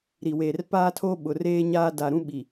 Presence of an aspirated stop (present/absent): present